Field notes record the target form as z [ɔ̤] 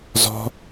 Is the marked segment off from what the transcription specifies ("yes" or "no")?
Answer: no